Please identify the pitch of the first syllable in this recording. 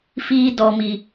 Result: high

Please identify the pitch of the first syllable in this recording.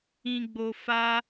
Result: low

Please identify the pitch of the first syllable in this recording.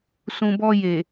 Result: low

